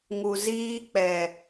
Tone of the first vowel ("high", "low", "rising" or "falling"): low